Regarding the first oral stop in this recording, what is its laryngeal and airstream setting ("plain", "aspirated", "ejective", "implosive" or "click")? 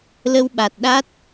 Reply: implosive